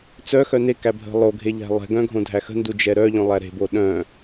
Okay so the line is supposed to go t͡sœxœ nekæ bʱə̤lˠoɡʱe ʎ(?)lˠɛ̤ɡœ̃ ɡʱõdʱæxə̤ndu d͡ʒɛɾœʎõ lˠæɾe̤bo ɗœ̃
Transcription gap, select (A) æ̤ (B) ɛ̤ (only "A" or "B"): A